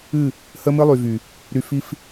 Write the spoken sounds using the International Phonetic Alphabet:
ɨ˦˨ | hə˦mɨ˦lˠy˨vy˨ | ɾy˨fi˦f

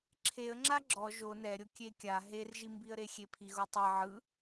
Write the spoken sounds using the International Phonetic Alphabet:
ǁʰeə̯ŋ͡ǁa ɡ͡ǁɔ ʒo nɛɾʲo kʲekʲa ɦerʒimbiə̯ɾe xʲepʰiɣotˤi ʕɯ

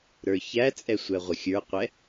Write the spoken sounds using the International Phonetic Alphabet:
ɾə˞çæt͡sʼɛ sʷɛʁʷəxʲə˞qʷɛ

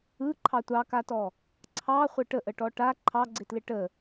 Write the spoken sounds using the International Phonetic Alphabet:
ɯ ǃʰɑtʷɑkatɔ | ǀʰɑ χʷɘʈəʔəʈɔ ʈa ǃʰɑɡ͡ǀɪtlɪ ʈə

